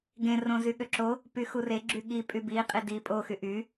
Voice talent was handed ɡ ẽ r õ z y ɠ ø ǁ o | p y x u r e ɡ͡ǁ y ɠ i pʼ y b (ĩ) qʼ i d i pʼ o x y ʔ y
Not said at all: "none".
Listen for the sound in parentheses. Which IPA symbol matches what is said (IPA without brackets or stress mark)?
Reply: i